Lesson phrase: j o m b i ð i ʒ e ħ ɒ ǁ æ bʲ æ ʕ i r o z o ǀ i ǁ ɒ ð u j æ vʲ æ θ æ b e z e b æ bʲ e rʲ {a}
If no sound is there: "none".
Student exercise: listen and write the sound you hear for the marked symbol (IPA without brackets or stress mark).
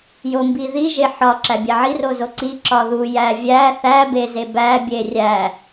æ